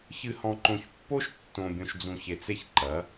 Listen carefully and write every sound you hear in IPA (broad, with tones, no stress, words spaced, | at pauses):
çɨ˨hɔ̃˨ǃõ˨çpːo˦ʃ tːõ˨bʲõ˨ʃd͡zũ˨ç e˨t͡se˦çǃɐ˨˦